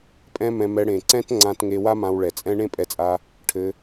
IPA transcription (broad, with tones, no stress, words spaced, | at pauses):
pʼɛ̃˦mɛ̃˧mɛ˧ ɽẽ˨ǀɛ̃˦t ŋ͡ǀã˧t ŋe˧wa˦ mã˧wɭɛ˨t͡sʼɛ̃˦ ɳẽ˦pʼɛ˧t͡sʼa˧ | ʈʰɘ˧